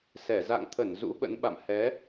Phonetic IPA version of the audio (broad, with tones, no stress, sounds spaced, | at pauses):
s ɛ˧˩ z a̰˧˨ ŋ t̪ʰ ə˧˩ n z ṵ˧˥ ɓ ə̰˧˥ n ɓ a̰˧˨ m h ɛ˨˦